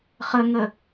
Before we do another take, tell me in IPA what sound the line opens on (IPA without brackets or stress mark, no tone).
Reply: χ